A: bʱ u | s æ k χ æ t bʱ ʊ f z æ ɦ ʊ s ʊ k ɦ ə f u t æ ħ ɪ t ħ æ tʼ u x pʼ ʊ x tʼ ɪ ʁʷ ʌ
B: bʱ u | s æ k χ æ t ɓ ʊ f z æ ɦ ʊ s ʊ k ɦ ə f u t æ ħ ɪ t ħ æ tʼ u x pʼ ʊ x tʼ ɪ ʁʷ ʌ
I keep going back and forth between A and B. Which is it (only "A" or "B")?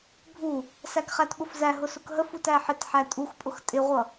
B